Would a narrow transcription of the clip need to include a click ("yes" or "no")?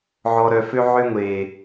no